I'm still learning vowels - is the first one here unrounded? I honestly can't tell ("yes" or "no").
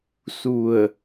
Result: no